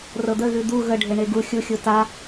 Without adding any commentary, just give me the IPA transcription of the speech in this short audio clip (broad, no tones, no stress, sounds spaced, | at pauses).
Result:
r ɤ d̪ ə ɣ ʉ d̪ u ɣ ə ɖʱ e ɳ e ɡ u xʲ u xʲ u t a